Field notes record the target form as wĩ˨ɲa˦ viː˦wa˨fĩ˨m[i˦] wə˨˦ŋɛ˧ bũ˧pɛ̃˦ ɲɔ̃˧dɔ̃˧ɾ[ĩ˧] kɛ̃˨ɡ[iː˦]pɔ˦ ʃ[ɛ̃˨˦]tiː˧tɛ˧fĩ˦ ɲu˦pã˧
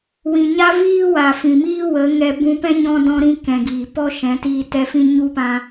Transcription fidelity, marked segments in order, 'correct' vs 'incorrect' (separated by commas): incorrect, correct, incorrect, correct